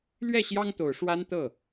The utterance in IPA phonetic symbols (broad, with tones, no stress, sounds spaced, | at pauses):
l ɥ ɛ˥˩ ɕ j ɑ˥ ŋ t̪ o˨˩ ʊ̯ ʂ w a˥ n t̪ ɤ˥˩